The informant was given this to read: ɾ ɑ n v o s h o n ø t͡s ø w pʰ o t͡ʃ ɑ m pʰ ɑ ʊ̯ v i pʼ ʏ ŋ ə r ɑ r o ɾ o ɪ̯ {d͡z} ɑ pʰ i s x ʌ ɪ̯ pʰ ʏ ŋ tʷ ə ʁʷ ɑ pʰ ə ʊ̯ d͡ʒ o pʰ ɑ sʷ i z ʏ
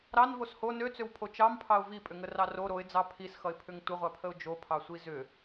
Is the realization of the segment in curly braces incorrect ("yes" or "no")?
no